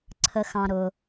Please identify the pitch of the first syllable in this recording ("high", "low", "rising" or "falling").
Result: low